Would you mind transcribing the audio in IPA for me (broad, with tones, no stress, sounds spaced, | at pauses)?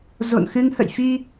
z o̰˧˨ n x ɨ˧ ŋ h ə̰˧˨ j f i˧